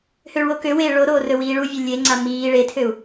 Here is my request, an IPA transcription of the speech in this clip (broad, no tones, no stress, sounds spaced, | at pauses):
h ø ɭ w o k ø w eː ɭ o ɾ oː r ɵ w iː ɭ u vʲ ɵ lʲ e ŋ͡ǀ a m iː ɭ e tʰ ø u̯